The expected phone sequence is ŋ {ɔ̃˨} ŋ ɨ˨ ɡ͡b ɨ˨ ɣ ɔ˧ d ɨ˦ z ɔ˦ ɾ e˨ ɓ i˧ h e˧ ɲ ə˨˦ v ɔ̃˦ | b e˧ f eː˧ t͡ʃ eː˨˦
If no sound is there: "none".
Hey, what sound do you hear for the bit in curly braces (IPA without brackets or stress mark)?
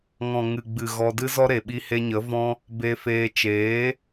ɔ̃˨